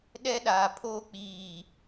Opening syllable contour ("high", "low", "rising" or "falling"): high